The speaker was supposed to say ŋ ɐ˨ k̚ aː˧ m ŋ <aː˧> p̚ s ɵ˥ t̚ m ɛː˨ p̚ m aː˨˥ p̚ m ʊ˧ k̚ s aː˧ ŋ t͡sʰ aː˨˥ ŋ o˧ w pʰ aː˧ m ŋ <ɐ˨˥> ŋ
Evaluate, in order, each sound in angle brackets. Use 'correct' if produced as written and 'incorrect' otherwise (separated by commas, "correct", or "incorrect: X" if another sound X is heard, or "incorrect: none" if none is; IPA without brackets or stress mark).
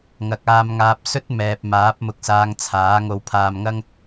correct, incorrect: ɐ˥